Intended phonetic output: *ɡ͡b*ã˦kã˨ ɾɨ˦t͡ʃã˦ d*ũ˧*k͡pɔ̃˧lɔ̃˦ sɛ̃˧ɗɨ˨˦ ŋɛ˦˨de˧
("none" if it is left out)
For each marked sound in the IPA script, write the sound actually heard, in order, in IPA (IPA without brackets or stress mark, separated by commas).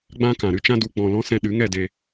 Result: ɡ͡b, u˧